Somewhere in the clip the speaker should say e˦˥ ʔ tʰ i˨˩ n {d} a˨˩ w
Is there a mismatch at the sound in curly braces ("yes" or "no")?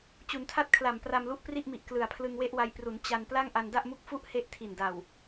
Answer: no